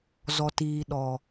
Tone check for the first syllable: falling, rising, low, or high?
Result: low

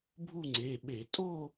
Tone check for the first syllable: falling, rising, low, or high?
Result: falling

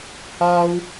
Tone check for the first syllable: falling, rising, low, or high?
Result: high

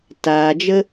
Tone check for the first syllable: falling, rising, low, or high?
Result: low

